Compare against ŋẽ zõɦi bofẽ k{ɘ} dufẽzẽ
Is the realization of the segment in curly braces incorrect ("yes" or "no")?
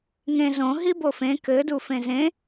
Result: no